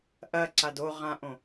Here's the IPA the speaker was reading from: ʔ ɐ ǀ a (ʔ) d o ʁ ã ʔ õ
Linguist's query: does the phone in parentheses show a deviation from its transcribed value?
yes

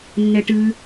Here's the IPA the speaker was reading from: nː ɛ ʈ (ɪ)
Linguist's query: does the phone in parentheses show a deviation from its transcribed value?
yes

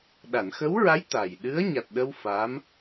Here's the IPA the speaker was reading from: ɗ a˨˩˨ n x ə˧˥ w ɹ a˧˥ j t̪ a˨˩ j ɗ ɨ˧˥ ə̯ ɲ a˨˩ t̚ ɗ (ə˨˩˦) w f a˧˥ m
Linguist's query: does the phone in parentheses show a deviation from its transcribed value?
yes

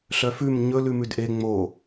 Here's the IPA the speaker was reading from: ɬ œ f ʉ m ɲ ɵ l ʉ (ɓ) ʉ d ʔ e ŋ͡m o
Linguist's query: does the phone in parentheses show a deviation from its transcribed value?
yes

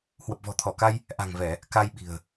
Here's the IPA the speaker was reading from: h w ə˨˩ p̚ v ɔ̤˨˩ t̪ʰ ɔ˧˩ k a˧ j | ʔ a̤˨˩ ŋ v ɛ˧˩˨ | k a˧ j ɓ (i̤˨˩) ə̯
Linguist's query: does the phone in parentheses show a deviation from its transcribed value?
no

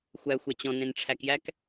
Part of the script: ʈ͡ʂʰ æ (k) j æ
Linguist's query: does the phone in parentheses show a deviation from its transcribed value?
no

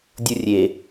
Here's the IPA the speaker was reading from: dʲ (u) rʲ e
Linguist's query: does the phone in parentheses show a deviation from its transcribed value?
no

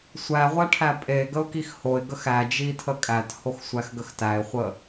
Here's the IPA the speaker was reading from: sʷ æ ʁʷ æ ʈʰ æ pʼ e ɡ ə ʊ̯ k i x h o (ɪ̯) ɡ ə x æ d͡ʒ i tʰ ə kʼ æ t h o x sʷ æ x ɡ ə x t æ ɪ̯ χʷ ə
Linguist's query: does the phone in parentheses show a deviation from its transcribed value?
no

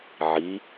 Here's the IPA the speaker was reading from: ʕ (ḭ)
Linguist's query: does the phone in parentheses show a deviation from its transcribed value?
yes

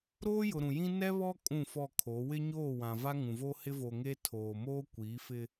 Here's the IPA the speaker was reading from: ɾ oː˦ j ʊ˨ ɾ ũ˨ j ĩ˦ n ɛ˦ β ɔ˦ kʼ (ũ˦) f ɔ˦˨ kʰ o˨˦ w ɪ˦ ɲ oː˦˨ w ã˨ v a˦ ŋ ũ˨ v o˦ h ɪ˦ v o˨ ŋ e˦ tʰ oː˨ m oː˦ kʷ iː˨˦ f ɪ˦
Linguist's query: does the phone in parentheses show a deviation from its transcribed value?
yes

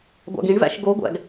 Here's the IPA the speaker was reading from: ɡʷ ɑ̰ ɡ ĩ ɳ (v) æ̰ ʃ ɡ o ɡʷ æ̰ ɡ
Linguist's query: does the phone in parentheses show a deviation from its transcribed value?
no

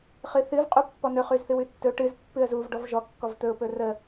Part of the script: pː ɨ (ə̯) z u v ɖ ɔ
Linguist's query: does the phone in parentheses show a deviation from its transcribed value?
no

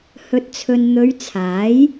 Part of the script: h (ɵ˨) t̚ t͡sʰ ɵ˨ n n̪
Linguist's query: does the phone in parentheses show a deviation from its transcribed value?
no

